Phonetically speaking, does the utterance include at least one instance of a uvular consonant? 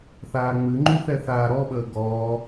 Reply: no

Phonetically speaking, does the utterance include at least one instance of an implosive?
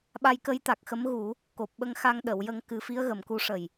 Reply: yes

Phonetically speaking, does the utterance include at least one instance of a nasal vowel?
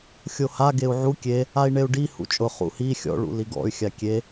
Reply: no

